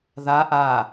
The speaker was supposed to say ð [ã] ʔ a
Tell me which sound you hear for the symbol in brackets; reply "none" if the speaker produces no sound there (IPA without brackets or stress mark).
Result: a